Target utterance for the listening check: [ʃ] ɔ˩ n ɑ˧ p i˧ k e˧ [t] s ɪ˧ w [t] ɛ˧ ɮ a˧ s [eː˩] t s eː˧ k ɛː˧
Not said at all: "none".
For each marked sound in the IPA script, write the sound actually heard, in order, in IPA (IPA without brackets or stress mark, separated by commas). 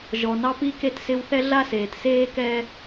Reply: ʒ, t, θ, eː˩